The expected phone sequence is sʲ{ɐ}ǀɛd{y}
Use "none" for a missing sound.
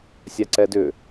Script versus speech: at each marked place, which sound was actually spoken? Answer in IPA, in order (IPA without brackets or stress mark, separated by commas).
a, ʏ